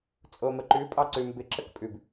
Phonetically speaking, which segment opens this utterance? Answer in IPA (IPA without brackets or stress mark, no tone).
t͡sʼ